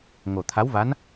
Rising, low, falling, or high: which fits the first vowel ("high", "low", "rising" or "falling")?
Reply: low